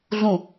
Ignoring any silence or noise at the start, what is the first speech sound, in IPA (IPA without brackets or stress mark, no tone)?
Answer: ɮ